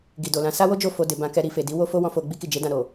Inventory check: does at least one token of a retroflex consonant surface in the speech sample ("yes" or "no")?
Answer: no